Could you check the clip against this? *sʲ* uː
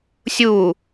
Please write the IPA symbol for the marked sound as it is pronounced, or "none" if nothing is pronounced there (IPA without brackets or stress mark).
sʲ